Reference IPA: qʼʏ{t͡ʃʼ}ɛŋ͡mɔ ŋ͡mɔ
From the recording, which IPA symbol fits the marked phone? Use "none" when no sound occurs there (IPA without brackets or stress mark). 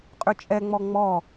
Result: t͡ʃʼ